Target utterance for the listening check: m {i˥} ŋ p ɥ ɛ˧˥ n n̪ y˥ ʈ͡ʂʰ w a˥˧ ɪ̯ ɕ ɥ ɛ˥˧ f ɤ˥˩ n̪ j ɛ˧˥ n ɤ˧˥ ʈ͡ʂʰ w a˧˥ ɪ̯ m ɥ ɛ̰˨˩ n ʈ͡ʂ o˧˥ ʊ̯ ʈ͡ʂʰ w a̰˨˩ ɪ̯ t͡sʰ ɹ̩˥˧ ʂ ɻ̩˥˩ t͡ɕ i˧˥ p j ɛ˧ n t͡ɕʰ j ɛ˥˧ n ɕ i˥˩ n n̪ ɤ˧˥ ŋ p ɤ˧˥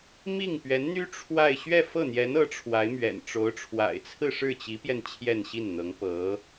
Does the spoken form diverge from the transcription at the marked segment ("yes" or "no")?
yes